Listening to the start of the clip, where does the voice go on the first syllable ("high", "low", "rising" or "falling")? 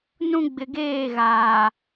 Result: high